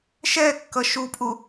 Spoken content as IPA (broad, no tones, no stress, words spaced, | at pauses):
ʃɛkːʌ ʃupʼu